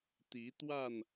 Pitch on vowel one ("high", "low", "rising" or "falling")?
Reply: rising